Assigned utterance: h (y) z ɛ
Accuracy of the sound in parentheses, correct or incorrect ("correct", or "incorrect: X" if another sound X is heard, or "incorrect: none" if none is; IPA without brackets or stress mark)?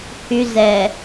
correct